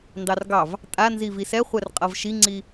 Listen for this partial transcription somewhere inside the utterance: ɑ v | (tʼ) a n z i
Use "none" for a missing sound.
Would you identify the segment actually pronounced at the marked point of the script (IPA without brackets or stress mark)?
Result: tʼ